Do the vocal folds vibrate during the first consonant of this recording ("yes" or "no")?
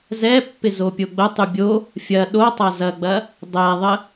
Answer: yes